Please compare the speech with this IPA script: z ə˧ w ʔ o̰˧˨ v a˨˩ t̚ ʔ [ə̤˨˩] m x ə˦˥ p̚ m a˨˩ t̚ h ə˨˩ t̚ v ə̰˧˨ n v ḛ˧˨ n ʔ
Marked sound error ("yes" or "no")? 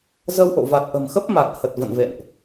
no